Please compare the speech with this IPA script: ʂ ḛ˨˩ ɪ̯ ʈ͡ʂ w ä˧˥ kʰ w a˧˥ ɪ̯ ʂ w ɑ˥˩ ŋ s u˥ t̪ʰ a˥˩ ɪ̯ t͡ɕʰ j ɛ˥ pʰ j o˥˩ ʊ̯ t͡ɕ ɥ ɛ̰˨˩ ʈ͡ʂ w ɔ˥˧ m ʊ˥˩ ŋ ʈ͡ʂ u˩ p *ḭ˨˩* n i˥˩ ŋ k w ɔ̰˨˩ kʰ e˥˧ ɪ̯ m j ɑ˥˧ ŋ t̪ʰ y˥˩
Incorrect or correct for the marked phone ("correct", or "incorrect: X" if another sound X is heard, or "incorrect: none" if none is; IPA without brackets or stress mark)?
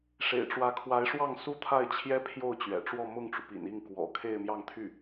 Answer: correct